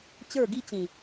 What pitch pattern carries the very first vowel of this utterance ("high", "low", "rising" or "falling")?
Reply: falling